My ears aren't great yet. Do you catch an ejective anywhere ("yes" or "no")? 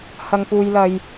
no